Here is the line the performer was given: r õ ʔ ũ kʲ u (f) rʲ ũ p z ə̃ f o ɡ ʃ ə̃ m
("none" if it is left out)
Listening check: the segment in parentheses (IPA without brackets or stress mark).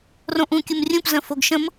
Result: m